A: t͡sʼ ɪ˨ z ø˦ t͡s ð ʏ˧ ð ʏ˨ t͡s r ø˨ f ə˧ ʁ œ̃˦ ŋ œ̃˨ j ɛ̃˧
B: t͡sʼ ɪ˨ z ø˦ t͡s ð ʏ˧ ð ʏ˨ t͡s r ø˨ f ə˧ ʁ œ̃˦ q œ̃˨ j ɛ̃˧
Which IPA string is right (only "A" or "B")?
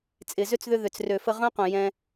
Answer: B